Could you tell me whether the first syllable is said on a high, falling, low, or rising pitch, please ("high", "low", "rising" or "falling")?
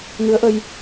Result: rising